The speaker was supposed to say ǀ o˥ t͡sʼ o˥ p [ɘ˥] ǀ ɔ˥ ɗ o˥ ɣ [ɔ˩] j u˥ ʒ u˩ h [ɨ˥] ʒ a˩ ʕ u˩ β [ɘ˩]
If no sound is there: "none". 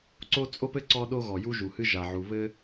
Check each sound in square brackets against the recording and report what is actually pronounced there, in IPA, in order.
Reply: ɘ˥, ɔ˩, ɨ˥, ɘ˥

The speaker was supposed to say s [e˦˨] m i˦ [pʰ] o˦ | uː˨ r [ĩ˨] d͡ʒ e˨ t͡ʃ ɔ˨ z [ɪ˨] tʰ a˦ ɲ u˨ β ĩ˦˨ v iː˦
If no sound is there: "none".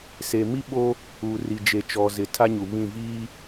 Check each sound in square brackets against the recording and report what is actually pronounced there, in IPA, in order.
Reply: e˨, ɓ, i˨, ɪ˨

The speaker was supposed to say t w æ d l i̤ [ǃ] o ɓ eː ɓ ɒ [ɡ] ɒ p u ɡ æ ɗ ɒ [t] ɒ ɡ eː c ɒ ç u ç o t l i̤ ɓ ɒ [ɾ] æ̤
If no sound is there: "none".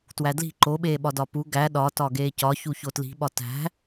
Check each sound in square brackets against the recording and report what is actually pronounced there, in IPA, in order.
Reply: ǃ, d, t, t

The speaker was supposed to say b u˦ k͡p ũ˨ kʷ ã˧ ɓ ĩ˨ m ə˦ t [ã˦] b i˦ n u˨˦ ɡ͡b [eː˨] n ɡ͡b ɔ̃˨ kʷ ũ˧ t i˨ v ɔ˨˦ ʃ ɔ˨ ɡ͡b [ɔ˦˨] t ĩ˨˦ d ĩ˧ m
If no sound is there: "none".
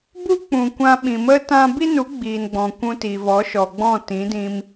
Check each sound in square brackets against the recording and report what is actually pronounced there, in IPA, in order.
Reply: ã˦, iː˨, ɔ̃˦˨

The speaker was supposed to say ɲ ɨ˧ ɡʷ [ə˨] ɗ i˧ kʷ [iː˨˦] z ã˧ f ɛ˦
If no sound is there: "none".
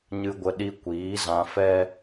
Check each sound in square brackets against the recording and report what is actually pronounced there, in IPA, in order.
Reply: ə˧, iː˨˦

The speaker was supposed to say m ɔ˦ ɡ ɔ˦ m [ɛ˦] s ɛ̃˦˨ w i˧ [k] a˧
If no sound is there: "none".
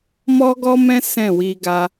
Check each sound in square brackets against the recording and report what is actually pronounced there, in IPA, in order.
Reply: ɛ̃˦, ɡ

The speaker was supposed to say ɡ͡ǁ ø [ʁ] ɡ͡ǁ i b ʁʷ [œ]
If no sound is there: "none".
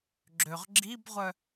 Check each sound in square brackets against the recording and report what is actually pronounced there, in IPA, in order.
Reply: ʁ, œ

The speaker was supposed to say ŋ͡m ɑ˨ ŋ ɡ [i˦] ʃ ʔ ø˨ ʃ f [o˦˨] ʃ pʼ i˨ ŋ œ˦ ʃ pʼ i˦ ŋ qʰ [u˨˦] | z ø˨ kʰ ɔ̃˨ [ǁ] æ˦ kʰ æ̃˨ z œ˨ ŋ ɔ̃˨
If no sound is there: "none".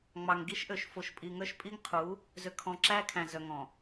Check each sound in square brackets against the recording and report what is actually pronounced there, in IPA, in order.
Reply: i˦, o˨, u˨˦, ǁ

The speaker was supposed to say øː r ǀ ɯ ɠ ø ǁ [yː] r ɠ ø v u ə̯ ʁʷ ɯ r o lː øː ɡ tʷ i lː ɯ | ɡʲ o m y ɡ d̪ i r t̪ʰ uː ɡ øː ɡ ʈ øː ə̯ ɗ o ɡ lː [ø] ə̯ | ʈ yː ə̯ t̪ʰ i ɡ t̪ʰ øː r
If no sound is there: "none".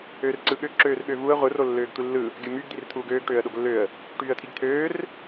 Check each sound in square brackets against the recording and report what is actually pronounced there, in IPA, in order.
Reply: øː, ø

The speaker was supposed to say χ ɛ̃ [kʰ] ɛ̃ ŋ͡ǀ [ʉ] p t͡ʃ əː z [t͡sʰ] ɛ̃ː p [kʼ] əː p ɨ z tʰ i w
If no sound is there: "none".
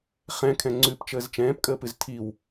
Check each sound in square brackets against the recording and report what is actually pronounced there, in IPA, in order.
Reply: kʰ, ʉ, t͡ʃ, kʼ

